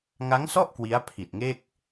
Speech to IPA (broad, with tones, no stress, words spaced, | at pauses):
ŋa˦˥ŋsɔ˥˩ʔ kwi˦˥a̯pʰi˨˩t̚ŋe˥˩k̚